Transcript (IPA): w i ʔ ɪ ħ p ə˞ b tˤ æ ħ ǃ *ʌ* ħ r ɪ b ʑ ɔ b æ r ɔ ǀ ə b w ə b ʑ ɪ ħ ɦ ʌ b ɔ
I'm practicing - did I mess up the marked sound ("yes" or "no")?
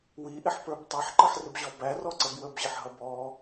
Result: no